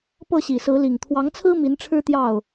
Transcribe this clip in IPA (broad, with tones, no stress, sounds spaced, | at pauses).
p ɤ˥˨ ɕ i˨˩ s ɹ̩˨˦ l i˨˩ ŋ t̪ʰ w ɑ˨˦ ŋ t͡sʰ ɹ̩˦ m i˨˦ n ʈ͡ʂʰ ɻ̩˦ t̪ j ɑ˥˨ ʊ̯